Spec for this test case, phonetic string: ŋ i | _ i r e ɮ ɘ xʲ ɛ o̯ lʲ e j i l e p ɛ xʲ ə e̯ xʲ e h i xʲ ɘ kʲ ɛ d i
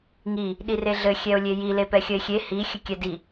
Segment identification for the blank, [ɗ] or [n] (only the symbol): ɗ